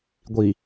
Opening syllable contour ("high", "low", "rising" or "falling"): low